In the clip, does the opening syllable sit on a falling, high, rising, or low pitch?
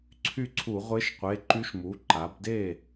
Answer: falling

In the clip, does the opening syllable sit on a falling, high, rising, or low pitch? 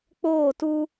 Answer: falling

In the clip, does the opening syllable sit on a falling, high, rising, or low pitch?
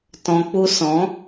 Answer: low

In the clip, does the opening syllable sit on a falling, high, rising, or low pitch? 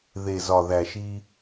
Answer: low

